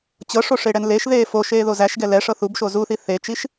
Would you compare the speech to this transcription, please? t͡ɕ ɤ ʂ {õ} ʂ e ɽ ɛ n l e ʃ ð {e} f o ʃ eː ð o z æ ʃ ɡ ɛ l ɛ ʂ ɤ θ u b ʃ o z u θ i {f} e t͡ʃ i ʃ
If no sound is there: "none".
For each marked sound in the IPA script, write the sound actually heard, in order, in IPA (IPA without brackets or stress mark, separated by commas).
o, eː, θ